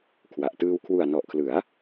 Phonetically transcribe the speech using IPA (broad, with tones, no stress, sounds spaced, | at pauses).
kʰ w a˨˩ ʔ t ɯː˧ w kʰ w u˨˩ a̯ n ɔ˨˩ ʔ kʰ l ɯ˩˦ a̯